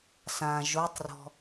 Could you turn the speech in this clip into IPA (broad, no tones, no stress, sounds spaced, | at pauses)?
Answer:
s ã ʒ o tˤ r ɔ̤